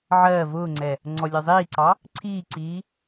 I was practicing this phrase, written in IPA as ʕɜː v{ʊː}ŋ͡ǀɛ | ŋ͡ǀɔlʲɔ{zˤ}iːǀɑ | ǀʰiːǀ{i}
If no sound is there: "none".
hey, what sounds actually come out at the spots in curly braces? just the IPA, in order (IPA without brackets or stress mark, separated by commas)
ʊː, zˤ, iː